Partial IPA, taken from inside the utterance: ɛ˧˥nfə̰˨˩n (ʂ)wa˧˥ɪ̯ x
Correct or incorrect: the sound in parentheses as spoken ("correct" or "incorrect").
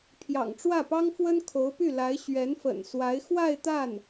incorrect